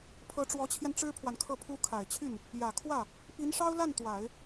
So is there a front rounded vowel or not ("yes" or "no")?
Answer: yes